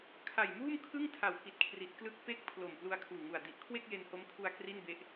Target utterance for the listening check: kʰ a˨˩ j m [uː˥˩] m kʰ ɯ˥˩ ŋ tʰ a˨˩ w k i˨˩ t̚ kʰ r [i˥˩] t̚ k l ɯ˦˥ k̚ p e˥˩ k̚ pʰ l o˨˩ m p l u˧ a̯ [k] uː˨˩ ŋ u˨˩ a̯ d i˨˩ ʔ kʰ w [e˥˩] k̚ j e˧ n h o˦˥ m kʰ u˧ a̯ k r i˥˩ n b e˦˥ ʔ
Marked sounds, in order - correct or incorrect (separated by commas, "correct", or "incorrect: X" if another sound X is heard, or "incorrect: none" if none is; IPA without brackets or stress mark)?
correct, incorrect: i˨˩, incorrect: kʰ, correct